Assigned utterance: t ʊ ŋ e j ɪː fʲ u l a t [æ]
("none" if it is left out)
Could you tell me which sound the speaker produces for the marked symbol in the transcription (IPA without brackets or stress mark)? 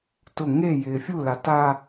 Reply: a